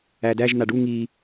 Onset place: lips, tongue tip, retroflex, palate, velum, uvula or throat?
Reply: tongue tip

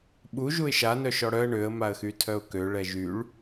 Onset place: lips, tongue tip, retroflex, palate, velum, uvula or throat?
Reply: lips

